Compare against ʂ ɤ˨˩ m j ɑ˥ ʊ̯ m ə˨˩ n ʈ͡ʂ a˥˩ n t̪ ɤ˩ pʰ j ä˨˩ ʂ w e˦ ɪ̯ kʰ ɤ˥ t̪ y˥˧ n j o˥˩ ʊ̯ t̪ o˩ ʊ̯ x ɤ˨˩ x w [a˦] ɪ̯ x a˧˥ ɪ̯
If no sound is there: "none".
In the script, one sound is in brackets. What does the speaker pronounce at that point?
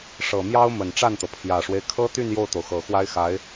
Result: a˥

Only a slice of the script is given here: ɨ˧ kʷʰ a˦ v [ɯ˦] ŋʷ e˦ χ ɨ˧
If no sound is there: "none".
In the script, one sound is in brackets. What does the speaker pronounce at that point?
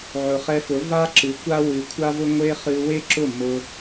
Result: ʊ˦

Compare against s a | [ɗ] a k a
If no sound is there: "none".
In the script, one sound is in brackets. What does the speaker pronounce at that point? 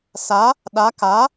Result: ɗ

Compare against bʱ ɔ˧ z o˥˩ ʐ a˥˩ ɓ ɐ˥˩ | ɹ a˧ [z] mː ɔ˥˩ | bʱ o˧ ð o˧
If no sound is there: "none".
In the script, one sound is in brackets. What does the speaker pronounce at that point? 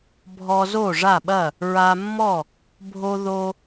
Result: none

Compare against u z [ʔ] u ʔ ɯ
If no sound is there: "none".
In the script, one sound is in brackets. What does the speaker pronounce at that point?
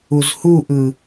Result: h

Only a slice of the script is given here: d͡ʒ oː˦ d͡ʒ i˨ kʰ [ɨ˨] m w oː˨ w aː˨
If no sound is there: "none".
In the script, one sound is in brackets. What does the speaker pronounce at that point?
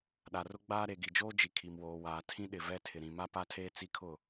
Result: i˨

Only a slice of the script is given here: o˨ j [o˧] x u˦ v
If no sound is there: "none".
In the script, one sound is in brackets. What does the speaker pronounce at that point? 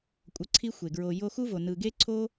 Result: o˧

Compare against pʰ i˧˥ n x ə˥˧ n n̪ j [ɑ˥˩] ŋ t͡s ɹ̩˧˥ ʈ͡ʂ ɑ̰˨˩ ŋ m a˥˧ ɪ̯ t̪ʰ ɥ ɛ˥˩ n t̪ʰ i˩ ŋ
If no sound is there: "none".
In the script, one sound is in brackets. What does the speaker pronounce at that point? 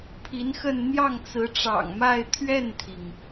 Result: ɑ˥˩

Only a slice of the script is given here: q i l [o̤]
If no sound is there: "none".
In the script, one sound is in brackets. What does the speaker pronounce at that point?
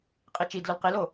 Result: o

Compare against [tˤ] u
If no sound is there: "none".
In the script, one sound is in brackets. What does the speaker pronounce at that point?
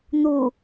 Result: n̪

